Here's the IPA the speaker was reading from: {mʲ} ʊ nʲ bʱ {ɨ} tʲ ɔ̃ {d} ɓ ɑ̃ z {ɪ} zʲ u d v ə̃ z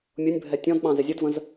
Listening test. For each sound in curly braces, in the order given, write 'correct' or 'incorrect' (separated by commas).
correct, incorrect, correct, correct